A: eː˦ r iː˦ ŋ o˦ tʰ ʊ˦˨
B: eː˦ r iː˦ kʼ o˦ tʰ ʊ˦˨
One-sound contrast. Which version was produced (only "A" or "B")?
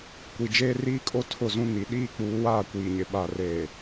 B